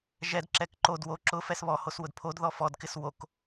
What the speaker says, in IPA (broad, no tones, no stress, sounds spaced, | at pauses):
ʒ ɛ d ǁ ɛ k ǃ o d w o ǁ ʊ f ɛ s β ɔ h o s w ʊ d pʰ o d ð ɔ f ɔ d k ɪ s w o k